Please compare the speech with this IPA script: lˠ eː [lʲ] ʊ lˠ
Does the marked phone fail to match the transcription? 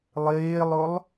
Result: yes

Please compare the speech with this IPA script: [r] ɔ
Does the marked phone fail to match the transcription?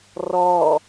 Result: no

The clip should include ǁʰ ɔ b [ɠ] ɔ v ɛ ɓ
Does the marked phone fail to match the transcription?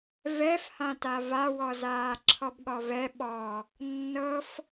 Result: no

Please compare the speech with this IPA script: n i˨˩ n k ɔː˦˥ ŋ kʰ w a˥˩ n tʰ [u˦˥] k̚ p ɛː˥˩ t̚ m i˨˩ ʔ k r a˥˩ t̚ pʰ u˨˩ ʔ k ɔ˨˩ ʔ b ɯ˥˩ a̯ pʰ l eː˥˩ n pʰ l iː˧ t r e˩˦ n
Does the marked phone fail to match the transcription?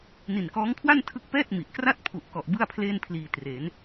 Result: yes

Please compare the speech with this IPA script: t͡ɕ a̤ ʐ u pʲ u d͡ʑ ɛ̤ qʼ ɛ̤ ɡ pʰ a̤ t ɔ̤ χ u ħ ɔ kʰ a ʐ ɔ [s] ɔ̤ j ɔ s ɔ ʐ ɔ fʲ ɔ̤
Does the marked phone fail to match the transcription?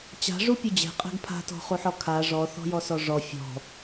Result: yes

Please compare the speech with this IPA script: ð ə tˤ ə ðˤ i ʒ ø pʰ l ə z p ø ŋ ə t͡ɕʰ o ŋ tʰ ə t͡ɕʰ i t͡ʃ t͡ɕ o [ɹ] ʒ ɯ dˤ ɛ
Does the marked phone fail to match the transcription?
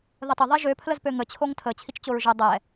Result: no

